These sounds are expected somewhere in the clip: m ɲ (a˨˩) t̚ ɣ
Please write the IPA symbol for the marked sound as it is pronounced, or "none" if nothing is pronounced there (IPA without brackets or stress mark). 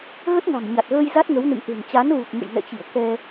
a˨˩